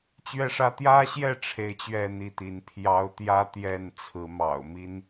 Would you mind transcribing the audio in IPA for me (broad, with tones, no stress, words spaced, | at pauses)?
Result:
t͡ɕɥɛ˥˨ʂä˦ t̪jä˦ɕjɛ˥˨ ʈ͡ʂʰe˥˨ɪ̯t͡ɕɥɛ˥˨n̪i˥˨t̪i˨˦n pʰjɑ˦ʊ̯ t̪jä˦ t̪jɛ˥˨nt͡sʰɹ̩˨˦ mɑ̰˨˩ʊ̯mi˦n